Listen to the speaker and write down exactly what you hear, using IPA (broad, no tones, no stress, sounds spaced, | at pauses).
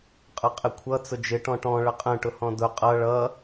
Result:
qʼ ʌ qʼ ɪ kʷʰ ʌ t͡s ʊ d͡ʒ ɪ ʈ ɔ̃ ʈ ɔ̃ ɭ ə qʼ ə̃ ʈ ʊ h ɔ̃ d ʊ qʼ ʌ ɭ ʌ